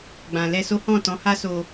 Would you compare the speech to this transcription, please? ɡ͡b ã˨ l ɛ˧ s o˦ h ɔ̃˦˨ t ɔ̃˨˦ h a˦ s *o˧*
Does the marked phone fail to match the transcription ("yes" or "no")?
no